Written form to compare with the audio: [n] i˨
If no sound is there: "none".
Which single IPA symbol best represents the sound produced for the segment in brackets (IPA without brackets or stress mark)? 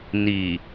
n